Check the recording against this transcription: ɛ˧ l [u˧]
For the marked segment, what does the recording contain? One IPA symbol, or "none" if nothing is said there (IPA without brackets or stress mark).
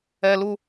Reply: u˧